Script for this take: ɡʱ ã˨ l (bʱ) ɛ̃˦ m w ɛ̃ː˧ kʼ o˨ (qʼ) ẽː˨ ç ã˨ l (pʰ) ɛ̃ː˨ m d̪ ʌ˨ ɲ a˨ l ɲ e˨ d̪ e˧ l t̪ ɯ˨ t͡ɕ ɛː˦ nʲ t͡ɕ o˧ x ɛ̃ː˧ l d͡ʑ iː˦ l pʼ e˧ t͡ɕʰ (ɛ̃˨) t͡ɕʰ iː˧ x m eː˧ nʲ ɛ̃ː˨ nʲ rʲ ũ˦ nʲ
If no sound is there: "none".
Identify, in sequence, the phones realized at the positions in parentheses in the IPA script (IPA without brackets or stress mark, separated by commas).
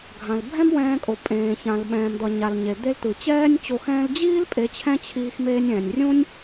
bʱ, pʼ, ɓ, ɛ̃˦